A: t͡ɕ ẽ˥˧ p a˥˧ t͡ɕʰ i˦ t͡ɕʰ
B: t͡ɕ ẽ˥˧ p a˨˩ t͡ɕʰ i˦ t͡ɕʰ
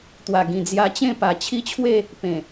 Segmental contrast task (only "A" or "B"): B